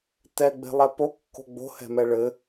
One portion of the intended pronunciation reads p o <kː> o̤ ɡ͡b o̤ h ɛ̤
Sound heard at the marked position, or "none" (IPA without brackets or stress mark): kː